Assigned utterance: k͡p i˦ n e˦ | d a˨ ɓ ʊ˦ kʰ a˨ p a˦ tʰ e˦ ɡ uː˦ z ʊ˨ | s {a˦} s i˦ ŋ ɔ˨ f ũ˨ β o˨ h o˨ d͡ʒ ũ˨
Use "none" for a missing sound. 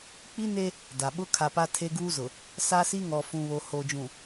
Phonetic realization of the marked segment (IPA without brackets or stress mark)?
a˦